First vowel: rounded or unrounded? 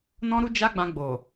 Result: rounded